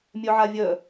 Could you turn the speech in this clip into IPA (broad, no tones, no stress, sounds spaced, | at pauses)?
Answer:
mʲ œ ʕ a vʲ œ